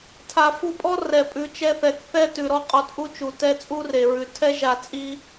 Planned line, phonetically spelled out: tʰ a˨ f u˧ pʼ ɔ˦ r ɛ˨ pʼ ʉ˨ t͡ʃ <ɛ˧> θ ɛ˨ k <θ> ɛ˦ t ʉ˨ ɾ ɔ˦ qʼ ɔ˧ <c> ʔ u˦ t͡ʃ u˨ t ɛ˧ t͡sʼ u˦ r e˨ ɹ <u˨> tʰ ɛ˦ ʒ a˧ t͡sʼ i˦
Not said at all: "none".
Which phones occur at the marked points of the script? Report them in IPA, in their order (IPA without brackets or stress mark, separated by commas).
ɛ˧, θ, t, ʉ˨